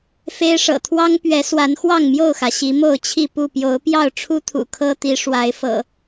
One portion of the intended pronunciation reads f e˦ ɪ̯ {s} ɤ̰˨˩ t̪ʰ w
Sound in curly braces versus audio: incorrect: ʂ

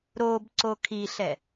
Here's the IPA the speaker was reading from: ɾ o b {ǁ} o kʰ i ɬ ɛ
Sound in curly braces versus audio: incorrect: ǀ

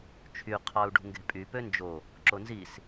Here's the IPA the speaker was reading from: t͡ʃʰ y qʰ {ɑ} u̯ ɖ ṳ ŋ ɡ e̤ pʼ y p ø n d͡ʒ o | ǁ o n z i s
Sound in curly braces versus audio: correct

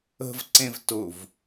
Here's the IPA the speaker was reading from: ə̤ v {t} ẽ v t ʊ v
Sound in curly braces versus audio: incorrect: ǀ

